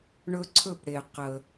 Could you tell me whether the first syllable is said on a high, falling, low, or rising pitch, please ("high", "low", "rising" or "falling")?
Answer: high